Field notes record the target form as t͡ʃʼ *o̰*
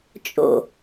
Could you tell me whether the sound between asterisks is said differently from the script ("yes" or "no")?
no